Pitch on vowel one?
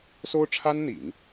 high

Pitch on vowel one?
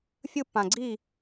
high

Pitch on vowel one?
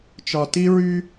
low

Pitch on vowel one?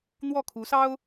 falling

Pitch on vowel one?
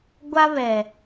high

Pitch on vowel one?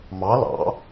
rising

